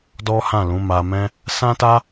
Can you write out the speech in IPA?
dɔ˦hã˦˨lũ˨˦ ma˧mɛ̃˦ | sã˦ta˦

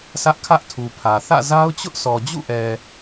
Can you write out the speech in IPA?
sä˦ʔkʰä˦ʔtʰu˨pʰä˨ θä̰˦˨za˦ʊ̯ t͡ɕʊ˦ʔsʰɔ˨d͡ʑṵ˦˨ʔɛ˨

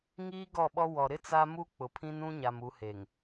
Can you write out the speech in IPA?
ŋiː˦ɡɔ˦˨ɓɔ˦ wɔ˨ɾɪ˦ t͡sa˦ mu˦ k͡pʊ˨pʰĩ˦n ũ˦ɲa˨m u˨˦he˨ŋ

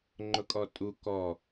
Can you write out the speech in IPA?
ŋ͡ǃʊkʼɔtʼu kɔ

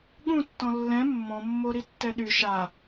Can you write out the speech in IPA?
ɠũtːɔ̃ lːɛ̃ mːɔ̃mːoɾi tːɛɗy ʃa

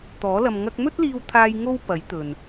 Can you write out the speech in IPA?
t̪ɔː˨˥lɐ˧m ŋɐ˧k̚mɵ˥t̚liː˧w t̪ʰaː˧j ŋo˥wpɐ˨˥j t̪ɵ˨n

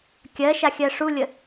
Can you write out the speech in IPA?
kʲɜʃaxʲɜ ʂulʲə

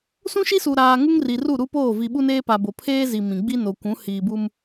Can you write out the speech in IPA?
sũ˦ʃi˦suː˨ ɾaː˨ŋu˦ŋ ri˨ru˦˨ ɾu˦poː˦˨ vi˨ɓu˦neː˦ pa˨bo˨pʰeː˦zi˨ mĩ˨ ɡ͡bi˦no˨kʷũ˨˦ hiː˨bu˦m

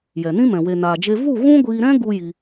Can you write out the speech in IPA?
jɛ˨nĩ˦mɛ̃˨ we˨naː˨d͡ʒe˧ vu˦˨ ɣũ˦ɡʷiː˧ɾɛ̃˦ ɡu˦ji˧

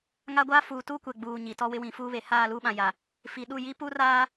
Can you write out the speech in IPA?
ŋa˦ɡʷaː˦ fuː˨tuː˦kʷɛ˨ ɡ͡buː˨ ɲi˨ tɔ˦wɪ˦ wĩ˨˦fuː˦βe˨ haː˦˨luː˦ɓã˨ ja˨ | fi˨ɗu˦˨ji˦pu˦ raː˦

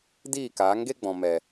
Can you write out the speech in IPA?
diː˦˨kaː˨˦ŋɡe˦ɡ͡bɔ̃˨ mɛ˨

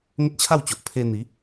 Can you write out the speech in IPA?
ŋə˦t̚t͡ɕʰa˥˧wt͡ɕo˨ʔ pʰe˧ n̪i˨˦

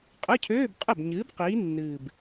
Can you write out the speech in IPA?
qʼə˧˥˧cʰøː˧˥˧bqʼə˥˩bɲɨː˨˥b qiː˨˥ nːɨ˨˩b

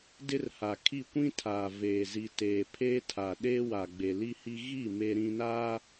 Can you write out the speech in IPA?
dɪ˦rha˨kʰi˦˨ kʷĩ˦tʰaː˨veː˨ zi˨teː˨ pʰeː˦tʰa˨ɗeː˦wa˨ ɡ͡be˨li˦hi˦ ɣi˦˨ me˦ɾĩ˦naː˦

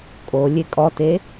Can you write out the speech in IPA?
kʼo lʲekʼɔte

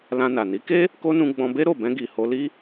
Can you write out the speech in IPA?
lã˧na˨ ni˨˦ke˦ | ko˦nũ˧ ɡ͡bɔ̃˧be˦ ɾo˦˨bɛ̃˧ɡi˨ ho˧li˦

